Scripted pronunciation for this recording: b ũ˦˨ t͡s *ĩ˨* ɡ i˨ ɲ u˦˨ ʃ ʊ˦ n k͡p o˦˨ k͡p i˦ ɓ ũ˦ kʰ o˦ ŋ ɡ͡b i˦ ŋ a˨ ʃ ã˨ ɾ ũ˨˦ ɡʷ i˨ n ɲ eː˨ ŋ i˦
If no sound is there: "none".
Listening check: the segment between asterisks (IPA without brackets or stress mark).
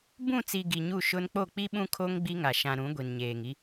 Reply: i˨